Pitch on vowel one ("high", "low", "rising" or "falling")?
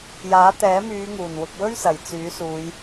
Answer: rising